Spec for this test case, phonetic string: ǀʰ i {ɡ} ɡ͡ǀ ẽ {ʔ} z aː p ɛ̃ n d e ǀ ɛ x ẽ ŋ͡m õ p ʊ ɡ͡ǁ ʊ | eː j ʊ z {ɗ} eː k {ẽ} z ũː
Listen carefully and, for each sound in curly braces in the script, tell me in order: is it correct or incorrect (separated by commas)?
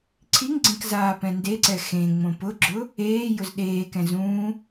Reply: incorrect, incorrect, correct, incorrect